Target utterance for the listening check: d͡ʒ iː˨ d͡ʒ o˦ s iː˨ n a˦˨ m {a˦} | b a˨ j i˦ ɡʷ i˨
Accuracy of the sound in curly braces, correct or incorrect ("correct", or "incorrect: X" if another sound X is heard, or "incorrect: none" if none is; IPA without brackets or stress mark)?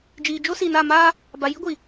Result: incorrect: aː˦